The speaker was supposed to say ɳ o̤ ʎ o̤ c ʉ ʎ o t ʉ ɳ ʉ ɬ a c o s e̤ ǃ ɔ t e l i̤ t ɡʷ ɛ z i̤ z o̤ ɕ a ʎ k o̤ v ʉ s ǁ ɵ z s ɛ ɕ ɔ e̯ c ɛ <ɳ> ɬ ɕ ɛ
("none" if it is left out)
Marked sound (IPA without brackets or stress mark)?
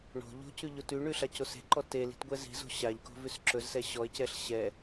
none